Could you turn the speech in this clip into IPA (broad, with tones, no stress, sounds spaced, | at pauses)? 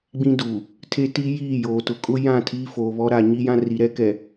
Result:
ɡ͡b ĩ˦ d uː˨ | tʰ e˦ t i˦ j iː˦˨ j oː˨ t ʊ˨ kʼ ʊ˦ j ã˦˨ tʰ iː˦ f oː˨ β ɔ˦ ɾ a˨ ɲ i˦ j ã˦ r i˨ ɾ ɛ˦ k ɛ˨